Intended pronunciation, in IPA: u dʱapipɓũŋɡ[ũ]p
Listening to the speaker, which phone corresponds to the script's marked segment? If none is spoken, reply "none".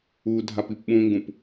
ũ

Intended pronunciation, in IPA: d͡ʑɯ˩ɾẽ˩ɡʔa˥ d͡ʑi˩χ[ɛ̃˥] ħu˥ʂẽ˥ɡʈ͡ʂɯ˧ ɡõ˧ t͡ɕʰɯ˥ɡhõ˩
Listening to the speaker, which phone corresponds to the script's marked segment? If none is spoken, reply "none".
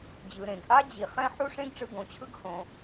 ɛ̃˥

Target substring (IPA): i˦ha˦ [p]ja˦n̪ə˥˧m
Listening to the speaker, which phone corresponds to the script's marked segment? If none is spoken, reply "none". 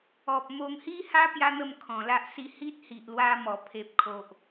p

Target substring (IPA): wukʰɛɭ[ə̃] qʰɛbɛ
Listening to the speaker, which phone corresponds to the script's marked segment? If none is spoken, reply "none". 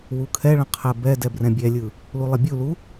ə̃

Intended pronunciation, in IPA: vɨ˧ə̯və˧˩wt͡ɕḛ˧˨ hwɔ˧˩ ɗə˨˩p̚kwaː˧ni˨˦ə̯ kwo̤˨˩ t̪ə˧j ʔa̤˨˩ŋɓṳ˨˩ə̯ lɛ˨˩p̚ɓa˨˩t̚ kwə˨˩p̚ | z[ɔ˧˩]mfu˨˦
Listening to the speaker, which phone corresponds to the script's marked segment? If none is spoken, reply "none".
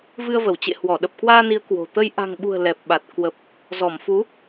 ɔ˧˩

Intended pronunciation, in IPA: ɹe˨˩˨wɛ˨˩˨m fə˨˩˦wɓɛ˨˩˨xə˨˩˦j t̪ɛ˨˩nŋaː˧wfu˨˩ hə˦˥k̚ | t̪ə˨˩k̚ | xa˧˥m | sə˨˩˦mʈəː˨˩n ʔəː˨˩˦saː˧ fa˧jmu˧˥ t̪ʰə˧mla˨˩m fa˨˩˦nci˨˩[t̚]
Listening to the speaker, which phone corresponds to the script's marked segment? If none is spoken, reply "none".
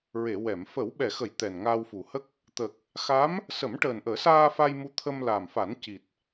t̚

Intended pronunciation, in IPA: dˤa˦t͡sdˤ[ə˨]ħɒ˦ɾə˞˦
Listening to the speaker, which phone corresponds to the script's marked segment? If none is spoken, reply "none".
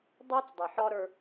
ə˨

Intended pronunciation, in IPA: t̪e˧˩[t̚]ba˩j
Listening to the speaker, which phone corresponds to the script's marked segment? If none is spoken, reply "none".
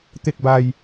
k̚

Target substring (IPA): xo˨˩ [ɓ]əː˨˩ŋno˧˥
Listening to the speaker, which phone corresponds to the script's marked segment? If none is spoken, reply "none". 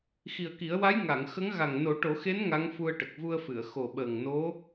ɓ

